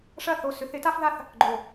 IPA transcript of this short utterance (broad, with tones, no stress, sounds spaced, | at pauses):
ʂ ɐ˥˩ θ o˧˩ s ʏ˨˦ θ ɪ˨˦ t a˦ f ð a˦ θ | ɡ͡ǃ o˧˩